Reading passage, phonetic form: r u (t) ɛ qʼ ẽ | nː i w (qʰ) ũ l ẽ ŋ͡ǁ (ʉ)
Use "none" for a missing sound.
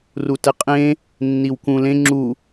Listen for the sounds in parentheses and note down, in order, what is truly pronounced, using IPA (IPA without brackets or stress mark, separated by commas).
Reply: t, k, u